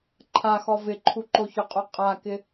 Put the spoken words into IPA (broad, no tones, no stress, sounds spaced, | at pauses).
ǃʰ a x ɔ v ɪ ǃʰ u ǃ o ç ʊ qʼ u qʼ a k ɪ